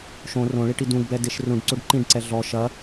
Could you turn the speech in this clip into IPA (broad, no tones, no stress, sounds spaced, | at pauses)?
ʃ õ r õ ɭ i ʈ i d ũ ɡ b ɛ d e ʃ r ũ ɖ ǀ o ɖ ǃ ĩ ɖ ǀ ɛ ɮ ɔ ʃ ɐ